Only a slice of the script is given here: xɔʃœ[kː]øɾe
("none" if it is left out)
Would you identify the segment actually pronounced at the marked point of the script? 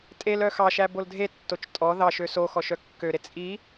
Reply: kː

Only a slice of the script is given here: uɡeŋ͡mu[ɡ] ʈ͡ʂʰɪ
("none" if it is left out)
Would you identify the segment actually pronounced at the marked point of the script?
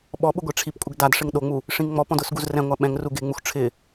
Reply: x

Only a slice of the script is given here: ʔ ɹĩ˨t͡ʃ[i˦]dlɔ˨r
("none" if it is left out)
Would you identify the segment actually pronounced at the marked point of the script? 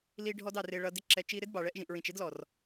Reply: ɪ˦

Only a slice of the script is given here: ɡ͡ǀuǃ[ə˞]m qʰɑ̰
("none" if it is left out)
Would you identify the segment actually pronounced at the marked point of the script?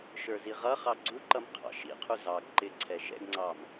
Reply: ʌ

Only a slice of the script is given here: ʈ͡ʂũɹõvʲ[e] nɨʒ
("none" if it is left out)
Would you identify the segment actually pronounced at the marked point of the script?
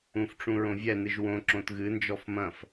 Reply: ɛ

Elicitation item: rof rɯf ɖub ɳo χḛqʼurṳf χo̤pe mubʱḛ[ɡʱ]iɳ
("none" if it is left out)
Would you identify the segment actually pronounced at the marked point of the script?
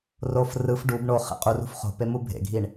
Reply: ɡʱ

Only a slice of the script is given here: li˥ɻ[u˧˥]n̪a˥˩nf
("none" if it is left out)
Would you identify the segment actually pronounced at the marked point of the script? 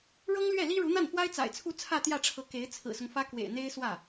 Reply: u˧˥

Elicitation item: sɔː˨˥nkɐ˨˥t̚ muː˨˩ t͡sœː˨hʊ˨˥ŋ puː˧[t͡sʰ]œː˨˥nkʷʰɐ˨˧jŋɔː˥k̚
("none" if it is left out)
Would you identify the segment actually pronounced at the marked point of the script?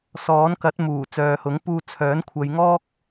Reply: t͡sʰ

